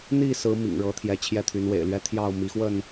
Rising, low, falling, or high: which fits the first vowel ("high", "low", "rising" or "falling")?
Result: falling